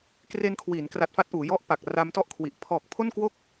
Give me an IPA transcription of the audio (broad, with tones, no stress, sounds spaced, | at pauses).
k r e˧ n kʰ w iː˩˦ n k r a˨˩ t̚ f a˦˥ t̚ ʔ uː˩˦ j ɔ˦˥ ʔ p a˨˩ k̚ r a˦˥ m t ɔ˥˩ ʔ kʰ w i˨˩ ʔ pʰ ɔː˨˩ k̚ pʰ o˥˩ n k w o˥˩ k̚